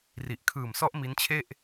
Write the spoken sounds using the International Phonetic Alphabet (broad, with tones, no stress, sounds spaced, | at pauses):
r i˨˩ ʔ kʰ ɯː˨˩ m s ɔ˦˥ ʔ m i˦˥ n t͡ɕʰ e˥˩ ʔ